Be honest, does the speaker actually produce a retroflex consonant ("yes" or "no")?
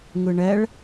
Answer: yes